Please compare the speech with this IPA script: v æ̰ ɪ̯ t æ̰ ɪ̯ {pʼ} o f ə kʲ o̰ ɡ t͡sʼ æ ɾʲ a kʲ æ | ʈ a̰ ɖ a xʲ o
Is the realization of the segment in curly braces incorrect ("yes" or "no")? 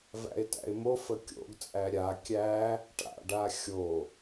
yes